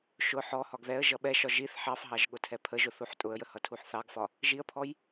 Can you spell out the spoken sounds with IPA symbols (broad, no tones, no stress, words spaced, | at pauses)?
ʃʊ ħɔhɒɡ ðɛə̯ ʒʌɓɛʃɒ ʒiθ ħɑfɦɑʒ ɠʊtʰɛpʰəʒʊ θuħtʼʊə̯jə hʌtʰuħθɑɡfɒ | ʒiə̯pʰɔj